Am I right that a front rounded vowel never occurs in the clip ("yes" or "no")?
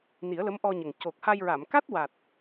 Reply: yes